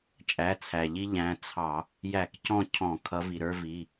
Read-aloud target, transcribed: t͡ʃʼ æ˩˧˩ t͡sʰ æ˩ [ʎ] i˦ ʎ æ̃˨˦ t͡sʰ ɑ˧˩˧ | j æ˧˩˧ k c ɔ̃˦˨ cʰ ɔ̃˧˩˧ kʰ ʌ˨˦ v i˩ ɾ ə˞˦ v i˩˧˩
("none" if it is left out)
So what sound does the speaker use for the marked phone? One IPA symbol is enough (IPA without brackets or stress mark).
ʎ